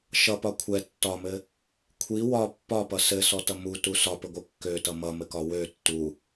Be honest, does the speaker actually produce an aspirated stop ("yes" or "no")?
yes